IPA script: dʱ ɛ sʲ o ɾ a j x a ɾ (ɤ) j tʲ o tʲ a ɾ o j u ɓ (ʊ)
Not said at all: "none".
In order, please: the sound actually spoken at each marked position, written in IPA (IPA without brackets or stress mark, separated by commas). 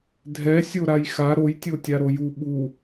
o, u